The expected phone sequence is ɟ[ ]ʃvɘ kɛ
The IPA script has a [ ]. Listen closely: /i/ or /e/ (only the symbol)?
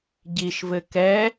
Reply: i